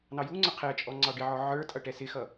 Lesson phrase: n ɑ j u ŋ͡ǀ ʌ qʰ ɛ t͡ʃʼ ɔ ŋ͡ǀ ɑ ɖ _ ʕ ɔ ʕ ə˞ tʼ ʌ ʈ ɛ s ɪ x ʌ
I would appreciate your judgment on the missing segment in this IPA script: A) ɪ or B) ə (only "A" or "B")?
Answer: A